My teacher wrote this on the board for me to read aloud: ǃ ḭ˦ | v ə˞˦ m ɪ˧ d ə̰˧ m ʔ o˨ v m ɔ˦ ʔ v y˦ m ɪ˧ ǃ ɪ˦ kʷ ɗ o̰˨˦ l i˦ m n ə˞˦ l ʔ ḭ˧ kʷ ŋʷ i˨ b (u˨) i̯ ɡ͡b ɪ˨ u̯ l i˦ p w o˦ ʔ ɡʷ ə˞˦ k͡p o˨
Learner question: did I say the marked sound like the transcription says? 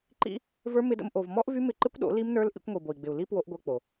no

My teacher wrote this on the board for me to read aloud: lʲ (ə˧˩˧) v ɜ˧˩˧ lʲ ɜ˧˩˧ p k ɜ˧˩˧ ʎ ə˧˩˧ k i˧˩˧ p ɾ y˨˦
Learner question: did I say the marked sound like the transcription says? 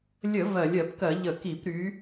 yes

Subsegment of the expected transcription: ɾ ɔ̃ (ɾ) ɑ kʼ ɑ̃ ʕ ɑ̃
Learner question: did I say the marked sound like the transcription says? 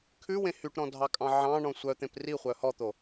no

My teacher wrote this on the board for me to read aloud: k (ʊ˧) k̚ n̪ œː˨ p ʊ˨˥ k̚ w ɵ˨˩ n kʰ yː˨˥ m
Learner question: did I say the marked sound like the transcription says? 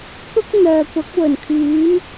no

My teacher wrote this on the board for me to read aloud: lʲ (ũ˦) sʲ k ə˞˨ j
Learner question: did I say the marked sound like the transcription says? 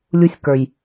no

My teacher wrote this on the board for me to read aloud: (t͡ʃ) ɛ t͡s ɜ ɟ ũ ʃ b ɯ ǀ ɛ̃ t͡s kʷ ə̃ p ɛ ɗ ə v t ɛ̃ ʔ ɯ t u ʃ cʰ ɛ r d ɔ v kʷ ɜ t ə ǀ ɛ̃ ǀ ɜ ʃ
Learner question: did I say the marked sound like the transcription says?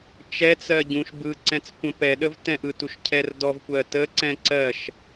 yes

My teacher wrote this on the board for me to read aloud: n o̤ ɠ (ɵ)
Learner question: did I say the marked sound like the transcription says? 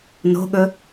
yes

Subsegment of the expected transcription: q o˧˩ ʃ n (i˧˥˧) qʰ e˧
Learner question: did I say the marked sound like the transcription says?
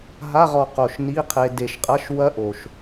yes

